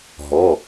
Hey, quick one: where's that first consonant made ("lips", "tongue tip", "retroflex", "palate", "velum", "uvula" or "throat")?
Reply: throat